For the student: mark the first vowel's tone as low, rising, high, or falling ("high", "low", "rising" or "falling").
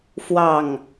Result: falling